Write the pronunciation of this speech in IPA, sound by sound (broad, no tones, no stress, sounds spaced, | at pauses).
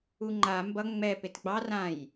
u ŋ͡ǃ a m b ʌ ŋ͡m ɛ p e t ɡ͡b ɑ r ã j